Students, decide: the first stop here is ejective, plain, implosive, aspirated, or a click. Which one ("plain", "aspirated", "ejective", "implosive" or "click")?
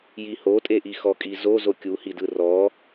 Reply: ejective